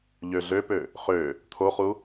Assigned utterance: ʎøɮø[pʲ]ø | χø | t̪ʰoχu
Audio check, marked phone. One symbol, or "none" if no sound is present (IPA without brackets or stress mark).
p